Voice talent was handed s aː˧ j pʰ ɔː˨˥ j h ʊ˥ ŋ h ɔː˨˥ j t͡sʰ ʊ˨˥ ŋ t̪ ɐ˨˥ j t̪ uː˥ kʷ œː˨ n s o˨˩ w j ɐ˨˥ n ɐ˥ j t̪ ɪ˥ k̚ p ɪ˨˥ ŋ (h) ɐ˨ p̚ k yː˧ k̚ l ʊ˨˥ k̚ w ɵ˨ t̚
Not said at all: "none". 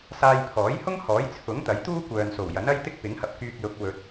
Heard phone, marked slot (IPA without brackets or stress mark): h